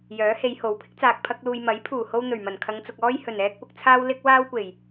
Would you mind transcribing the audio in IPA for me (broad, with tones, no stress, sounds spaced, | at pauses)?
j œː˨˥ h e˨˧ j h o˨˥ w pʰ ɪ˥ k̚ t͡s aː˨ k̚ pʰ ɐ˧ k̚ l uː˨ j m ɐ˨˥ j pʰ uː˨˩ h o˥ w n̪ ɵ˨˩ ɥ m ɐ˨˩ n kʰ ɐ˨˧ ŋ t͡s ʊ˨ k̚ ɔː˥ j h ɵ˨˩ n ɛː˥ k̚ p ʊ˨ k̚ t͡sʰ aː˥ w l ɪ˥ k̚ w aː˥ w kʷ e˨˩ j